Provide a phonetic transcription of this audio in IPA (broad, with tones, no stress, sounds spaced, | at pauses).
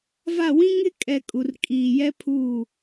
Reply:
v a˦˨ w ĩ˦ ŋ ɪ˦ kʼ ɛ˨ kʼ u˨ r kʼ iː˨ j ɛ˦ pʰ uː˦˨